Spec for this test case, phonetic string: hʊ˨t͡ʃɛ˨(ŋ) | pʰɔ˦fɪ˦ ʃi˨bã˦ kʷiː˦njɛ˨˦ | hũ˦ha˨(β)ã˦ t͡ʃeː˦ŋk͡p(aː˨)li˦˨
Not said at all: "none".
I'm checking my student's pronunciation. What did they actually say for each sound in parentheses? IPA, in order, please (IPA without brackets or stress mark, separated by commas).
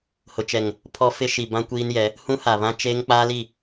ŋ, β, aː˦